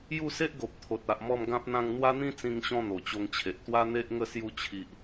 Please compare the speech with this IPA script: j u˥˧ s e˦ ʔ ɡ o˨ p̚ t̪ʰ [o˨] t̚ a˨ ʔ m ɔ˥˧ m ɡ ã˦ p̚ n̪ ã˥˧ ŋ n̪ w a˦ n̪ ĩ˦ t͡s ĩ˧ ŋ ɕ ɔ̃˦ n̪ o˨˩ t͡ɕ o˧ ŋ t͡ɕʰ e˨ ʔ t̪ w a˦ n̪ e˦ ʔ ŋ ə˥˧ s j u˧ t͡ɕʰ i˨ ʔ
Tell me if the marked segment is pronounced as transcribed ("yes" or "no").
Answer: yes